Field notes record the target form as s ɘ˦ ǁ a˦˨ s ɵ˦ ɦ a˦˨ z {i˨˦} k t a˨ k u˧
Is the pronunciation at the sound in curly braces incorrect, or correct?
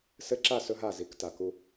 correct